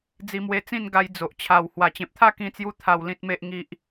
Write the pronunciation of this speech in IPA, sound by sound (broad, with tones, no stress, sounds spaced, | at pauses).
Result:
d͡z i˧ m w e˧ t͡s ĩ˥˧ n ɡ a˧ j d͡z o˨ ʔ t͡ɕʰ a˨˩ w h w a˨˩ t͡ɕ ẽ˨ p̚ t̪ʰ a˥˧ k ĩ˧ t͡s j u˧ t̪ʰ a˨˩ w l ĩ˨ t̚ m e˨ ʔ ŋ i˨ ʔ